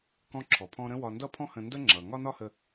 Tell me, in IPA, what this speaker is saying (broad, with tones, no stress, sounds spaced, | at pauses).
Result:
k ɔ̃˧ ǁʰ ɔ˩ pʰ ɔ̃˧ ɾ ə̃˥ w ɒ˧ n d ʌ˥ pʰ ɔ̃˥ h ə̃˧ n d ə˥ ŋ͡ǁ ʌ˩ ŋ ɒ˥ n ɒ˥ h ə˧